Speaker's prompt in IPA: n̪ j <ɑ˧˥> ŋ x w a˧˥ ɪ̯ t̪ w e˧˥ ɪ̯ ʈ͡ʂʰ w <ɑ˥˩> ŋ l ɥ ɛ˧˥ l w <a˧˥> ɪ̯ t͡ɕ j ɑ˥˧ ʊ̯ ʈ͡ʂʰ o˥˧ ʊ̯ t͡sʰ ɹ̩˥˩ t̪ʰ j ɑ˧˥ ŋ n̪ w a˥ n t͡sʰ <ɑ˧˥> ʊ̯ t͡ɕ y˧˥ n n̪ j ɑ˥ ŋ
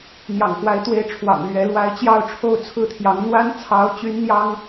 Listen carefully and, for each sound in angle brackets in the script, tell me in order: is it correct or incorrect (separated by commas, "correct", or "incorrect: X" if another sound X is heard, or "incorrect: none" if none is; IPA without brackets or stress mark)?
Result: incorrect: ɑ̰˨˩, incorrect: ɑ̰˨˩, correct, correct